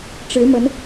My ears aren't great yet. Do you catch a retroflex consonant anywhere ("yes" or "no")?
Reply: yes